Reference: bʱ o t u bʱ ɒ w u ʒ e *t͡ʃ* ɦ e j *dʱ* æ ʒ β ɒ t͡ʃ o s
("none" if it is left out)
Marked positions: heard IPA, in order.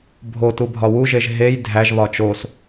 ʒ, dʱ

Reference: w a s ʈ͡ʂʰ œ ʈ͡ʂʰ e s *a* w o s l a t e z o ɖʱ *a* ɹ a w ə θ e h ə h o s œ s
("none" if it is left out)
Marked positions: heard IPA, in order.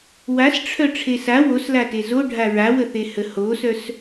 a, a

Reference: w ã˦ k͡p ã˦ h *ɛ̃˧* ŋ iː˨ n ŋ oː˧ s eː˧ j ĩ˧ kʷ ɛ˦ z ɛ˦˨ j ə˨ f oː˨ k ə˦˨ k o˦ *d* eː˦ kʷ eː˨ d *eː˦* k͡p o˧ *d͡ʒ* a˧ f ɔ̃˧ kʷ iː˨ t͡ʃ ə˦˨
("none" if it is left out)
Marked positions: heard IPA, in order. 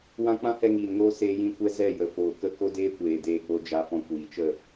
ɛ˧, d, eː˧, d͡ʒ

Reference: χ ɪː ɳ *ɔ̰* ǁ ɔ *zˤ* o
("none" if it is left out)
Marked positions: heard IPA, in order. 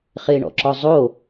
ɔ̰, zˤ

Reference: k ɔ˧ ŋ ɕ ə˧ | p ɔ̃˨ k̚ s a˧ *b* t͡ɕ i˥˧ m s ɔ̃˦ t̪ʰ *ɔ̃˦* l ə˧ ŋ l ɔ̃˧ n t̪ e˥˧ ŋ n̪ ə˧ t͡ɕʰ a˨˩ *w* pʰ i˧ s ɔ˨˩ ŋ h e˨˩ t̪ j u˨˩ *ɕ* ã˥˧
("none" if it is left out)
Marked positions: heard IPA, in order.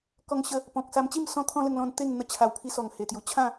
m, ɔ̃˦, w, t͡ɕʰ

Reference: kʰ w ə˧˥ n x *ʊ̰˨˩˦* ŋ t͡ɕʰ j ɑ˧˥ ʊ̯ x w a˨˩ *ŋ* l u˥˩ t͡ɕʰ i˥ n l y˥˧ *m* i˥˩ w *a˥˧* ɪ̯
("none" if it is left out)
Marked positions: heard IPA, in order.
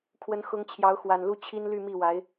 ʊ˧˥, n, m, a˧˥

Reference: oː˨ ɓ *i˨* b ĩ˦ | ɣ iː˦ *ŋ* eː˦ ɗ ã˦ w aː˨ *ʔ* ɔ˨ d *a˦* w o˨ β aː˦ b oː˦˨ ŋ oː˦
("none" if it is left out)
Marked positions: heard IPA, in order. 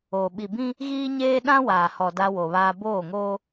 i˨, ɲ, h, a˦

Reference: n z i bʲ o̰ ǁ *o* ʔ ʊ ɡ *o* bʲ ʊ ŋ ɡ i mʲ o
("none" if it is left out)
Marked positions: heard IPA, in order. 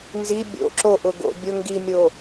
o, o̰

